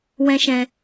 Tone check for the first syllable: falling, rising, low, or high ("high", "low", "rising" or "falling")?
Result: high